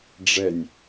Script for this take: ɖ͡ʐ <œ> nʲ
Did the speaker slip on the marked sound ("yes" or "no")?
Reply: yes